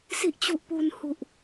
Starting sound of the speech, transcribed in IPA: s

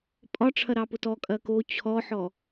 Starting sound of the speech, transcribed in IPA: pʼ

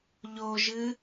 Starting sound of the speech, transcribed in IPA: ʎ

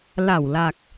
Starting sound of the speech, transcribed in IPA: l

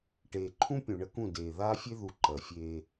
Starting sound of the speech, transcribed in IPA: ʈ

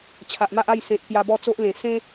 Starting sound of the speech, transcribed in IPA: t͡ɕʰ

